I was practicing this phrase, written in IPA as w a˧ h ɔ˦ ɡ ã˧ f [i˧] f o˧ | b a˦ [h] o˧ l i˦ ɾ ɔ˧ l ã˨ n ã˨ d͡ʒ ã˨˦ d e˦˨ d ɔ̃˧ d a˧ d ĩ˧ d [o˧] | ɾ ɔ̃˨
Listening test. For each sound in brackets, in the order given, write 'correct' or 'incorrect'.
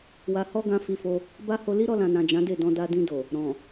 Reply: correct, correct, incorrect

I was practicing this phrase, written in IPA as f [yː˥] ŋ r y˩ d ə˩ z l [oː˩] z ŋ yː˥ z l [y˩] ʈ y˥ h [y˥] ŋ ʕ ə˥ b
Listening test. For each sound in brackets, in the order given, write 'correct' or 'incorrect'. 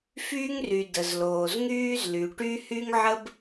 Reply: correct, correct, correct, correct

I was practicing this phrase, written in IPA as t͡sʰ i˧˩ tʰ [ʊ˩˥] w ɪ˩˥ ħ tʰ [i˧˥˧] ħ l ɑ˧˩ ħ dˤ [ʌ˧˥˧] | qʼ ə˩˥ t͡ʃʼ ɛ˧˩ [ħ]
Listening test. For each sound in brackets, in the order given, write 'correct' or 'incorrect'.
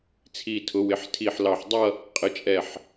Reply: correct, incorrect, incorrect, correct

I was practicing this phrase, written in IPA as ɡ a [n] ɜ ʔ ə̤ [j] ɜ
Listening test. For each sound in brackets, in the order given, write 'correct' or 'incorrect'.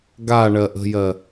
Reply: incorrect, correct

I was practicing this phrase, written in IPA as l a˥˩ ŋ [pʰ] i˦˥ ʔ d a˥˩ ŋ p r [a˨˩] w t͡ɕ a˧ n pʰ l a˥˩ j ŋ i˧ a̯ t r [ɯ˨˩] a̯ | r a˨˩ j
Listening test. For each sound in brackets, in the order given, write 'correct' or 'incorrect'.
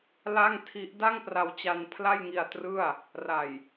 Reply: incorrect, incorrect, incorrect

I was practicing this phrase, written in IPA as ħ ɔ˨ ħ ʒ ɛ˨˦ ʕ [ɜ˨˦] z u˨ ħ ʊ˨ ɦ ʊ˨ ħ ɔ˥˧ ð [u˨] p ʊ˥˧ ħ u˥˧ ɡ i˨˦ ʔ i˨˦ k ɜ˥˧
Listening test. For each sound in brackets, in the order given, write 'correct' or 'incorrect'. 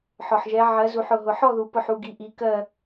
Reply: correct, correct

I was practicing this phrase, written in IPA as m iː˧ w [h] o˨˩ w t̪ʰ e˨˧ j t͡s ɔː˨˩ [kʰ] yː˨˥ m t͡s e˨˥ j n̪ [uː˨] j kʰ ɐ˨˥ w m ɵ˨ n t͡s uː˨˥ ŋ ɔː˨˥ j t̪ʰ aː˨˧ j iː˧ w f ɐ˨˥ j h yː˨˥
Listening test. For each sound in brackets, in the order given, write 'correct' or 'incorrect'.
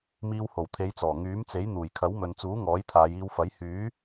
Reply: correct, incorrect, incorrect

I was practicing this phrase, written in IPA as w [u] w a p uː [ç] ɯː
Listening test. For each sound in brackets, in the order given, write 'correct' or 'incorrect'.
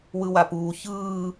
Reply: incorrect, correct

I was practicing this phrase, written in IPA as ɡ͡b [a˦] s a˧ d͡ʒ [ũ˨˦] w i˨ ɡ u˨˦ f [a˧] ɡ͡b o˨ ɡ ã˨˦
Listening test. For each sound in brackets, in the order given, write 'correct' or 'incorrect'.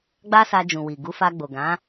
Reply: correct, incorrect, correct

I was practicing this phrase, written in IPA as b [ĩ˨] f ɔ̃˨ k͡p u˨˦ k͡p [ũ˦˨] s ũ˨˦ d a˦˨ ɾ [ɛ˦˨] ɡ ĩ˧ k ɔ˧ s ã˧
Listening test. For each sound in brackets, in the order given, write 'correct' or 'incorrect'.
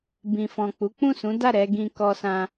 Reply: correct, correct, incorrect

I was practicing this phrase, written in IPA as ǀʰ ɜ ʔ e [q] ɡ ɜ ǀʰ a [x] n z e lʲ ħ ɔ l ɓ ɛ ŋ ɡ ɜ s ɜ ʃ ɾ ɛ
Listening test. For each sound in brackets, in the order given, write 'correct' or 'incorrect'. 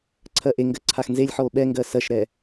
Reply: incorrect, correct

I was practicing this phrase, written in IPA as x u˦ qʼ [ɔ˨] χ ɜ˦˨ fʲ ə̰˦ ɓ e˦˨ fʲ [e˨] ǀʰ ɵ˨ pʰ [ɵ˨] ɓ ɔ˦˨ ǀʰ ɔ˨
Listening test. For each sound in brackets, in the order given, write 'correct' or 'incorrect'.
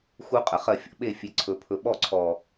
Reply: incorrect, correct, correct

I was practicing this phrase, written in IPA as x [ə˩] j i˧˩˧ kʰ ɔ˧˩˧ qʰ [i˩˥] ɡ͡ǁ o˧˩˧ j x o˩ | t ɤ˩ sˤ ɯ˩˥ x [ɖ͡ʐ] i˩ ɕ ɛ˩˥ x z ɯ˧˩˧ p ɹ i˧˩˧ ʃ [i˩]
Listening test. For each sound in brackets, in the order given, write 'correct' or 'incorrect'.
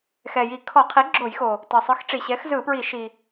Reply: incorrect, correct, incorrect, correct

